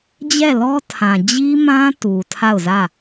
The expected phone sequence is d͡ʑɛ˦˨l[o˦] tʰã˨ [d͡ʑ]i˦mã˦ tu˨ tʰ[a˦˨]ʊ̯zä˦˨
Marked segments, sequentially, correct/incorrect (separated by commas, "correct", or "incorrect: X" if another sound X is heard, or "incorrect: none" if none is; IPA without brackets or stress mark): incorrect: ɔ˦, correct, correct